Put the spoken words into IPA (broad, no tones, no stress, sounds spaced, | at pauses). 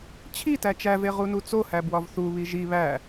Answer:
t͡ɕʰ i t æ t͡ʃ æ v e ʁ u n u t͡s o h æ b w ɒ v θ u β i ʒ i β æ